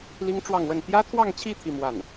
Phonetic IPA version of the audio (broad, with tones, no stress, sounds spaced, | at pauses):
l i˥ ŋ ʈ͡ʂ w ɑ˥˧ ŋ w ə˥˩ n t̪ j ä˥ t̪ʰ w ɑ˥˧ ŋ t͡ɕʰ i˥˧ t̪ʰ i˥˧ m w a˥˩ n